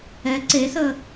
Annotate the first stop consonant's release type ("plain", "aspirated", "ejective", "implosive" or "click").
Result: click